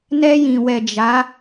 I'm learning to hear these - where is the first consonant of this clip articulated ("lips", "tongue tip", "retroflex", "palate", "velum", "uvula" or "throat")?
tongue tip